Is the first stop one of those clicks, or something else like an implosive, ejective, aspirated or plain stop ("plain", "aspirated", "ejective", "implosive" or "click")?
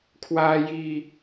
aspirated